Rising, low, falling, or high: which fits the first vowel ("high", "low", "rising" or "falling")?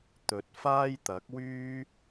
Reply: rising